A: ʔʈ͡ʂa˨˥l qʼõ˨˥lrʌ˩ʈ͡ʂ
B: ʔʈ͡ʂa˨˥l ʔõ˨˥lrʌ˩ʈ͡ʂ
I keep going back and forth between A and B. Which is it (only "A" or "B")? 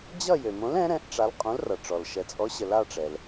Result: A